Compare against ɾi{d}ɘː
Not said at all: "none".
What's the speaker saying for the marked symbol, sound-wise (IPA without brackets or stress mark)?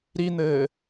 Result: n̪